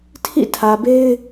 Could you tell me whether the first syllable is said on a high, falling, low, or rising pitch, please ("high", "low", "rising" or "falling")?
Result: falling